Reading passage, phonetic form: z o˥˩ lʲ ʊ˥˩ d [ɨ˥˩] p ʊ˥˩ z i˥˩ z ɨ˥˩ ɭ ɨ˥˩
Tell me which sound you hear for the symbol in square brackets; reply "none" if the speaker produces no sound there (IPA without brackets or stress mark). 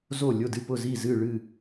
ɨ˥˩